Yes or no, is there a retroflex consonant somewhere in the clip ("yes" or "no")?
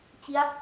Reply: no